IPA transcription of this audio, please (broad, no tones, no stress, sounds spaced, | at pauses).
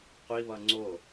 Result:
qʷ i β ʌ ŋ͡ǀ o